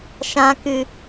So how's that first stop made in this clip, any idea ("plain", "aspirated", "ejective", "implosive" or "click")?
plain